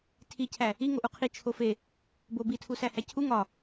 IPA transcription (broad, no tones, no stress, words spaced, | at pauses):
tʰicʰæ | iŋoʔ uqʰi t͡ʃʰofe | bobitʰu sæhæcʰu ŋɒ